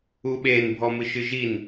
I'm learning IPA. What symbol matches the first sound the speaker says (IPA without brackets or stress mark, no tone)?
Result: u